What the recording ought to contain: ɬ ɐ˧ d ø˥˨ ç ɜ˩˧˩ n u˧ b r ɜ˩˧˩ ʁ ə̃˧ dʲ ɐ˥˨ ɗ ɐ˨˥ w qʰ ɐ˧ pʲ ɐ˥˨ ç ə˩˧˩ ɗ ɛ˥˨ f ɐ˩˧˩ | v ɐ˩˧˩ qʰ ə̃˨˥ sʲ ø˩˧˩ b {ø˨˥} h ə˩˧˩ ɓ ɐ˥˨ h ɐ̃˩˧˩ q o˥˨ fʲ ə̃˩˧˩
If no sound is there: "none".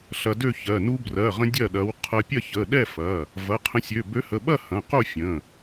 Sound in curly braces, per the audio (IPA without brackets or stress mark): ø˨˥